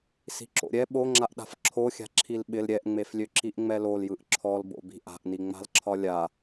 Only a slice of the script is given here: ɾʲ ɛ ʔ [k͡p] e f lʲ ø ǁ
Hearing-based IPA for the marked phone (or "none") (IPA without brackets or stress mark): ŋ͡m